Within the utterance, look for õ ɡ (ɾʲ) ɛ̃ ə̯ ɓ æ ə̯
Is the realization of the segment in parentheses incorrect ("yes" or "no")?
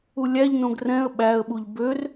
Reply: yes